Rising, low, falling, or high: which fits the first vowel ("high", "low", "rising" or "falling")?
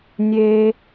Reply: high